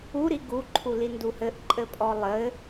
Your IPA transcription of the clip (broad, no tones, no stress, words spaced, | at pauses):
uɾi ɡuǃʰu linduhɘʔ ǃʼɘpʼɔlˠɘ